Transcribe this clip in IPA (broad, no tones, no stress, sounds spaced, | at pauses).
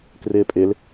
k r ɪː pʼ ɪ l